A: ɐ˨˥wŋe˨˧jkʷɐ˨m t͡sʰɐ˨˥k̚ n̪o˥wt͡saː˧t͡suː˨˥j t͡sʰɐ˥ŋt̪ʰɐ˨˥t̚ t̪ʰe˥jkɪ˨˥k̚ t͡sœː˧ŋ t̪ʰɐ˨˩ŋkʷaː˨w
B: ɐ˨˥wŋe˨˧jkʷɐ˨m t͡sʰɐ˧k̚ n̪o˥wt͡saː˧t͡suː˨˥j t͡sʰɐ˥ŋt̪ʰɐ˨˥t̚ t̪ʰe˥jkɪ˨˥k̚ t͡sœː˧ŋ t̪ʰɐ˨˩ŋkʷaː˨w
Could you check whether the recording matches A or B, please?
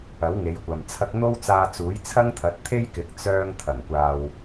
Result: B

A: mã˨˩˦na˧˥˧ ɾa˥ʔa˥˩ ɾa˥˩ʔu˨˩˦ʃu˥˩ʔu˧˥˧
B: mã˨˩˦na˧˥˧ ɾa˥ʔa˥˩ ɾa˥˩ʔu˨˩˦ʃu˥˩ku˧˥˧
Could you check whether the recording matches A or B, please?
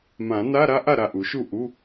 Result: A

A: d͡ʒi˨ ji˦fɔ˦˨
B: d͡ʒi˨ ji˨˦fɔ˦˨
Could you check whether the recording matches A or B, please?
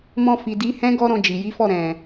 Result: B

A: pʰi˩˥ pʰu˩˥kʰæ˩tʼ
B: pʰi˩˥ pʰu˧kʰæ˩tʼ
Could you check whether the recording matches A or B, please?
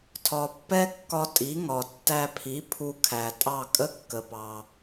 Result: B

